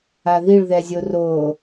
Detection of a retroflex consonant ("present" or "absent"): present